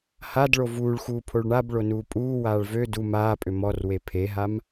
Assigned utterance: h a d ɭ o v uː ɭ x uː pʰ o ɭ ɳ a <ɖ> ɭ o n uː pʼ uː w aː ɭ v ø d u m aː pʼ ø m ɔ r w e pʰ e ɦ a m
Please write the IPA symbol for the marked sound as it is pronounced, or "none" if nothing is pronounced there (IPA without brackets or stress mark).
b